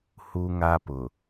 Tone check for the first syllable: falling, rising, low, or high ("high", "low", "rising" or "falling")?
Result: high